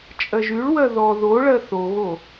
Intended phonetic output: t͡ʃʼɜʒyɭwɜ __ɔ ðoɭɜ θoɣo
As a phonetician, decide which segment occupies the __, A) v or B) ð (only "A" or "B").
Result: B